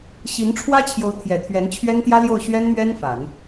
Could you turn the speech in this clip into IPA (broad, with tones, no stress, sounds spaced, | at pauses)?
ɕ i˧˥ n ʈ͡ʂʰ w ä˥ t͡ɕʰ j o˧˥ ʊ̯ t̪ʰ j ɛ˨˩ t̪ʰ ɥ ɛ˧˥ n t͡ɕʰ ɥ ɛ˥ n t̪ j ä˥ l j o˥˩ ʊ̯ ɕ ɥ ɛ˥ n m ɥ ɛ˥ n f a˨˩˦ n